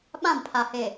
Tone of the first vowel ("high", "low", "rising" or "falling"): falling